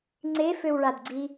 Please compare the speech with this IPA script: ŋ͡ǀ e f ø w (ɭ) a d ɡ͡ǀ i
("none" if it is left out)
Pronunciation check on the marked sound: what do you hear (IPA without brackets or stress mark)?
ɭ